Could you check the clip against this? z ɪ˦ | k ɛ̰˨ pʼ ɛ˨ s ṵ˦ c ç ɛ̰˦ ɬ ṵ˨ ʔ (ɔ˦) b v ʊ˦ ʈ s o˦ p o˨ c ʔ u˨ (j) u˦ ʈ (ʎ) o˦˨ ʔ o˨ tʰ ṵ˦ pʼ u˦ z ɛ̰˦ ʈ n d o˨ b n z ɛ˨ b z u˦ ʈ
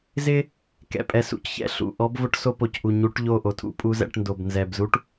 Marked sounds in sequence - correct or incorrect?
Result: correct, incorrect: ɲ, correct

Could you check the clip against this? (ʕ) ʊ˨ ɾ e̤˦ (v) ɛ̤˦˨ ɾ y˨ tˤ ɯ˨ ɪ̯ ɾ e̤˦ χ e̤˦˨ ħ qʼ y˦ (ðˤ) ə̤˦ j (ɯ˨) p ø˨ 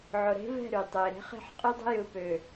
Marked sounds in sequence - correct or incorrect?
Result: correct, correct, incorrect: dˤ, correct

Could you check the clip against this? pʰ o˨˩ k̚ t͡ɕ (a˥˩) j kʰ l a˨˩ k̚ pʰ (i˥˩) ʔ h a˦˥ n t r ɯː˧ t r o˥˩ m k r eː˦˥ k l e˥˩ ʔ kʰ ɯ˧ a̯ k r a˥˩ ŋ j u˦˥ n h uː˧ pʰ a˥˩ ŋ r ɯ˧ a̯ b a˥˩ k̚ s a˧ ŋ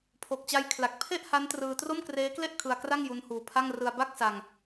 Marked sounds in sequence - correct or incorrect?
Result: incorrect: a˧, incorrect: e˥˩

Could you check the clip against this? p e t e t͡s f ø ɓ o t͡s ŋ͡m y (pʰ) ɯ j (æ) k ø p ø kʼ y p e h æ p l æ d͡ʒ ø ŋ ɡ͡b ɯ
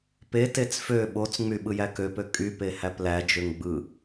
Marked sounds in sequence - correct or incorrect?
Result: incorrect: ɓ, correct

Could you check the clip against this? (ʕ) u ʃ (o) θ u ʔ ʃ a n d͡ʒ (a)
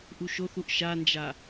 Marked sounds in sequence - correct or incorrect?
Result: incorrect: ʔ, correct, correct

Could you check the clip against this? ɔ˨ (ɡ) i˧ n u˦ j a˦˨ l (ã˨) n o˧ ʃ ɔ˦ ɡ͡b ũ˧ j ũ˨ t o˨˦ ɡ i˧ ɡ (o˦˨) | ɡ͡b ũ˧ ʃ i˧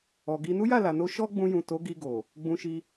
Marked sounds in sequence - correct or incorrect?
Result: correct, incorrect: a˨, incorrect: o˨

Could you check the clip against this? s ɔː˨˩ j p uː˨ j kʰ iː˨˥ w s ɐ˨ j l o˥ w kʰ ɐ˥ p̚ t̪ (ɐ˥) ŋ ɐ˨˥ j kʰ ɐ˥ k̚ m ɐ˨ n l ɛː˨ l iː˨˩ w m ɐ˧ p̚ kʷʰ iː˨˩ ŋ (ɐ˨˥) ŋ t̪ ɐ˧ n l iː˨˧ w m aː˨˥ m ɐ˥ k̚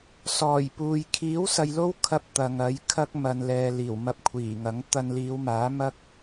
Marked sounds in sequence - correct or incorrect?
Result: incorrect: ɐ˨, correct

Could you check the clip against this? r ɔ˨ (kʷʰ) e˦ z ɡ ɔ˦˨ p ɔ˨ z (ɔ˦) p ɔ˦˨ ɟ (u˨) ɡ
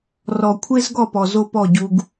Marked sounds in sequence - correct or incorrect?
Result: correct, incorrect: o˦, incorrect: u˦

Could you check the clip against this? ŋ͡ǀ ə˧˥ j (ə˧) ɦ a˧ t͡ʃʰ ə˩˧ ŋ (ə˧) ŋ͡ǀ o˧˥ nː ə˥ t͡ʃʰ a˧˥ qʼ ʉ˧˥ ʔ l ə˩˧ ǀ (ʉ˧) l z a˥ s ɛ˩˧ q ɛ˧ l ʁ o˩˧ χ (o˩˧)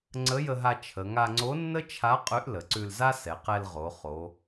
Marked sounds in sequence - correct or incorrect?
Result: correct, incorrect: a˧, correct, correct

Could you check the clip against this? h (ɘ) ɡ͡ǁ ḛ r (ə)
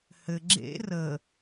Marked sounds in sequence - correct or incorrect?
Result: correct, correct

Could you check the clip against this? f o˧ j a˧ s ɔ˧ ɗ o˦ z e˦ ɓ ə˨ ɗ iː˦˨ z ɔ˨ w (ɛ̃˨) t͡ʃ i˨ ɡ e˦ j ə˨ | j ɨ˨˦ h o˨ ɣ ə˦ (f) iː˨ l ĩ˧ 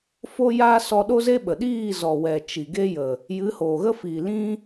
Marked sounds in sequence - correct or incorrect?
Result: incorrect: ɛ˨, correct

